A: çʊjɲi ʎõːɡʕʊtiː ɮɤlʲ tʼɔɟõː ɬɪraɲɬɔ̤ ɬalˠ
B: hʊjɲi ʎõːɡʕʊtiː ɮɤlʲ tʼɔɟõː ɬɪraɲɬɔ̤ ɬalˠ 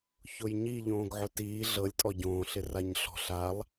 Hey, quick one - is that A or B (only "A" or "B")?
A